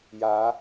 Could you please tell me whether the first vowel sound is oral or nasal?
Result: oral